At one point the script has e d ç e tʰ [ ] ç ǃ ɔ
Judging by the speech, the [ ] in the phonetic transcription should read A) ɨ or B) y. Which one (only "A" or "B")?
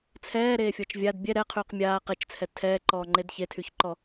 B